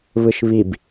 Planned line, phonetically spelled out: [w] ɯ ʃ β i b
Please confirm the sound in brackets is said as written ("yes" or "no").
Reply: no